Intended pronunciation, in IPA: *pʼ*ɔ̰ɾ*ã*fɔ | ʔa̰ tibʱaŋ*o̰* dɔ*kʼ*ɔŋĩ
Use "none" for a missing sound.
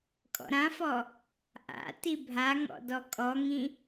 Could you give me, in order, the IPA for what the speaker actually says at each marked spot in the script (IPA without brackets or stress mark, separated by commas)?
kʼ, ã, ɔ̰, kʼ